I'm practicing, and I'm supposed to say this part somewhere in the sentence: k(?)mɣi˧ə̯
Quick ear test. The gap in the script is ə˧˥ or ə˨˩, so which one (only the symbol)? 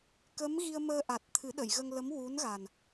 ə˧˥